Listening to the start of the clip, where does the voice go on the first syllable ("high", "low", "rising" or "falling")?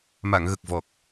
low